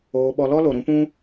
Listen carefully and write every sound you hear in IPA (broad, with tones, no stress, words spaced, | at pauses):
oː˧ɓɔ˧ lɔ˦lo˨ɾũ˦pũ˦